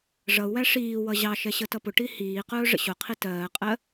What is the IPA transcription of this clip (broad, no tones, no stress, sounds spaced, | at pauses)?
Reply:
ʐ ʌ u̯ w æ ʂ iː w ʌ ʑ ɑ ʃ ɛ ɕ ə t ʌ p ʊ ʈ i h iː q ʊː ʐ ə̰ ɕ ʊ qʰ i t ɜː qʼ ɜ